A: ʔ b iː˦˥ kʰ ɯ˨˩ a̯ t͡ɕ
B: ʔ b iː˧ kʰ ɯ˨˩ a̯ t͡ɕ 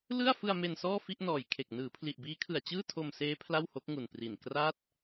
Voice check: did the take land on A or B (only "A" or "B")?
A